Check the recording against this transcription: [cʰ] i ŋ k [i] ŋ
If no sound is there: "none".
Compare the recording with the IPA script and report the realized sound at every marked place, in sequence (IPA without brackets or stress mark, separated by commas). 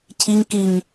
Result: cʰ, i